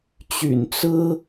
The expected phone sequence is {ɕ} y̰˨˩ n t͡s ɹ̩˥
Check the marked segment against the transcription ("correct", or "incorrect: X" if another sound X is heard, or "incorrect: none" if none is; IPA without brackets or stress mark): incorrect: t͡ɕ